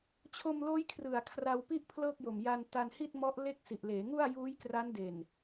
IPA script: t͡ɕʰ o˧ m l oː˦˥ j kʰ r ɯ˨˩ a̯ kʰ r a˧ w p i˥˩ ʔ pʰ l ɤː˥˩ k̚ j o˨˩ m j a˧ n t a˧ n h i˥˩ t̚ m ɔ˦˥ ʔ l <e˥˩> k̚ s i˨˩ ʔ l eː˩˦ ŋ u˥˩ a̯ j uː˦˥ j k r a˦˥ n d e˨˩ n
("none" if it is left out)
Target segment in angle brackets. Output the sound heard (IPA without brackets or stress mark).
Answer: e˥˩